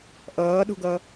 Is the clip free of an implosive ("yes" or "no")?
no